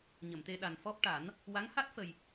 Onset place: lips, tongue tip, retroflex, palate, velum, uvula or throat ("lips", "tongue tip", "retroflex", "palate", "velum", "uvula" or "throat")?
palate